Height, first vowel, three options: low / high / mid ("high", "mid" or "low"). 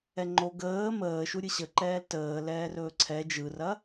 mid